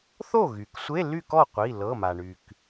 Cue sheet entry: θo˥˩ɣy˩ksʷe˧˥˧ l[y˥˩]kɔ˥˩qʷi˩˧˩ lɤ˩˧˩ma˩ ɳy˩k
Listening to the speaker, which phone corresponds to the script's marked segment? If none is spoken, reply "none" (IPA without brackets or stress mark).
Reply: y˥˩